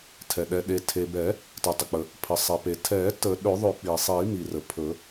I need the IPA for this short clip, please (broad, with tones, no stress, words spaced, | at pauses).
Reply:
tʰɛ˩ ɗɛ˩ɗe˩tʰe˩ bɛ˨˩˦ | tɛ˩tˤə˩k͡pə˩ | pʰə˩sˤe˩pe˩tʰɛ˨˩˦ tə˨˩˦ɗɵ˨˩˦ðˤɵ˨˩˦ k͡pi˩sˤi˨˩˦mi˩ rə˩pʰɵ˨˩˦